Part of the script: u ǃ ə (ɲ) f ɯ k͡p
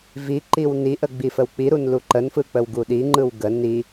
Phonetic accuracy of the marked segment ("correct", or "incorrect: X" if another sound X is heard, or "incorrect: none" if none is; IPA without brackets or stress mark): incorrect: n